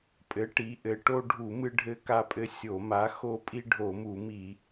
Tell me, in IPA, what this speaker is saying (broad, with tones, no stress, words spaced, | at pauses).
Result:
pʼɘ˨˥ʈi˨˥ʔɘ˨˥ ʈo˦ɖʱu˧˩˧ mɨ˦ɖʱɘ˦ka˦pʼɘ˦ sʲo˧˩˧ma˨˥xo˦ pʼi˦ɖʱo˧˩˧mu˧˩˧mi˧˩˧